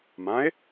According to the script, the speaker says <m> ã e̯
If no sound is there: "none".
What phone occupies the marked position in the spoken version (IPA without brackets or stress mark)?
m